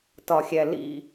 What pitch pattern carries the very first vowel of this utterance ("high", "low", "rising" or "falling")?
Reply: low